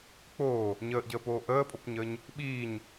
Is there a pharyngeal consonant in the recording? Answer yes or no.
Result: no